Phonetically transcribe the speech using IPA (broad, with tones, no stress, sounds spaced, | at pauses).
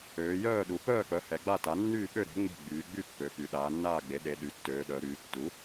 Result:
øː˩˧ j œː˥˨ ɗ u˩˧ p œː˥˨ k͡p œ˩˥ h ɛ˩˧ ɡ͡b a˥˨ t a˩˥ nː yː˥˨ ɓ ø˥˨ ɾ e̤˩˥ ŋ͡m e̤˥˨ ɡ͡b yː˩˧ ɡ͡b y˥˨ pː ø˩˧ p y˩˧ ɗ aː˩˧ nː aː˥˨ ɡ͡b e˩˥ ɗ e˩˧ ɗ y˩˥ tː øː˩˧ ɗ œ˩˧ ɾ yː˩˧ tː u˩˥